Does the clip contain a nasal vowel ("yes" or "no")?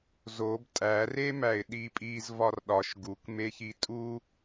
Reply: no